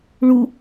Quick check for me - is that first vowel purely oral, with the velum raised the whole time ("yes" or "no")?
yes